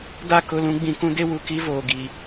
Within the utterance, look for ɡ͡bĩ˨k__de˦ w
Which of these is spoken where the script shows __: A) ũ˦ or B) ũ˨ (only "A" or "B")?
A